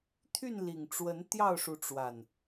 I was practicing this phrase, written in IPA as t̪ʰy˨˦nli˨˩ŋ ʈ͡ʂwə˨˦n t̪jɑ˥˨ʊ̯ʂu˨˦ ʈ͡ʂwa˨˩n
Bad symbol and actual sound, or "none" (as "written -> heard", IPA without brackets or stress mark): y˨˦ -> y˥˨